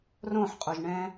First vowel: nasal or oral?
nasal